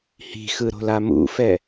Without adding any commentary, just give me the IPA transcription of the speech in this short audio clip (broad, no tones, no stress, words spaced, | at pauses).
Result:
hi̤xɯɾo̤la mṵfɛ